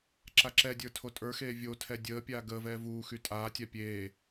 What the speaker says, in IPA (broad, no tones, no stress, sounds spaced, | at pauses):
ǁ a ǁ ɛ dʲ ə˞ tʰ o tʼ ə˞ x eː vʲ o tʰ ɛ dʲ əː pʲ aː ɡ əː v ɛː v uː x y tʼ aː tʲ a pʲ eː